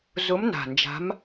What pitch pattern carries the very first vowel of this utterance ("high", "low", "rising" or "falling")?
rising